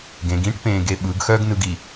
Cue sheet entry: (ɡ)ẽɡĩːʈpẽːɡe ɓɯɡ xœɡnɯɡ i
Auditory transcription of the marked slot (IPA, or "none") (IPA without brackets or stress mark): ɡ